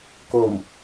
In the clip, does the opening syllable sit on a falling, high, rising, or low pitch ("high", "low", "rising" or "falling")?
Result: low